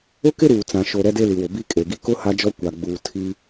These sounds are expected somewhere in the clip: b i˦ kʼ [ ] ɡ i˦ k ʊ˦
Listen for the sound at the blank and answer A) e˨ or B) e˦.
A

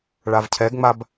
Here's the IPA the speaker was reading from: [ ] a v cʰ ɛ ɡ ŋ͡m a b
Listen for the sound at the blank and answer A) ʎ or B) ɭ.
B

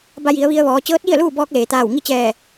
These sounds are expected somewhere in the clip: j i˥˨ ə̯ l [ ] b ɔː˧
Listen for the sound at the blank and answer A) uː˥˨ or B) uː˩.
A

